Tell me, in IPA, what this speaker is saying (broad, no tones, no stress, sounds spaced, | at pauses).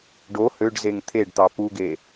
ɖ o h ø ɖ z e ŋ t̪ʰ e ɖ t̪ ɑ p u ɡ e